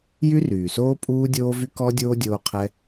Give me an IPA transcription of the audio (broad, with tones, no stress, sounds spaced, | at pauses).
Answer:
j y˥ r yː˩ s oː˥ pʼ uː˥ dʲ oː˥ v y˥ k ɔ˥ dʲ oː˥ dʲ oː˥ qʰ ɛ˥